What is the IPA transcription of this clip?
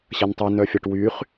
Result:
ɕ ɐ n tˤ i n œ fʲ ɐ ʈ w y χ

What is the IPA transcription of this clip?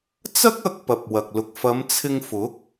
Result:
t͡s ɐ˥ k̚ ɐ˧ k̚ p ɐ˨ p̚ w ɐ˨ k̚ l ʊ˨ k̚ f ɐ˨˧ m t͡sʰ ɪ˧ ŋ f ʊ˨˥ k̚

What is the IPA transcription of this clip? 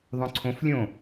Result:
ðˤ õ ǀʰ õ f lʲ õ

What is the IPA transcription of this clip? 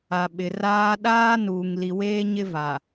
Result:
a˨ ɓ ɪ˨ r aː˦ ɗ aː˦ n uː˨ ŋ l i˨ w eː˦ ɲ ɪ˦ v a˨

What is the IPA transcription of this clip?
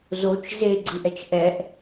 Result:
z o t͡ʃ z e ɡ͡ǀ ɯ ʔ ɛ t͡ʃ ʔ ɛ ʔ

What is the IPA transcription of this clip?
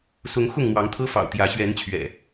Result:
s ʊ˨˦ ŋ x ʊ˥˨ ŋ n̪ w ɑ˨˦ ŋ t̪ʰ ɤ˦ f ɑ̰˨˩ ʊ̯ t̪ j ä˨˦ ɕ ɥ ɛ˨˦ n t͡ɕʰ ɥ ɛ̰˨˩

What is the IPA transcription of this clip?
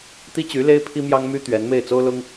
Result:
t̪ i˥ t͡ɕ y˧˥ l e˥ ɪ̯ pʰ i˥ m j ɑ˥ ŋ m y˥ t̪ ɥ ɛ˧˥ n m e˥˩ ɪ̯ t͡s o˥ ʊ̯ l ʊ˥ ŋ

